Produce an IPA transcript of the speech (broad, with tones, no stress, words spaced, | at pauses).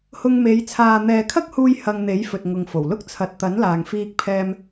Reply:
hʊ˧ŋme˨˧j t͡sʰaː˨n̪ɛː˨kʰɐ˥k̚huː˧j hɐ˧ŋ n̪e˨˥jfɵ˨t̚ŋʊ˨ŋfo˨˩w lʊ˥k̚t͡sʰɐ˨t̚t̪ɐ˨˥n laː˨ŋfiː˧k̚pʰɛː˧m